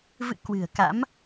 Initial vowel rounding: unrounded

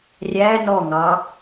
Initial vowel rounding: unrounded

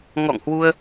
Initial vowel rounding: rounded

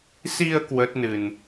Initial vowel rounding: unrounded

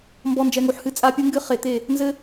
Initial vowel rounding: rounded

